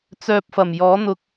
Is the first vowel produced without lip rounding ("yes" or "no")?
no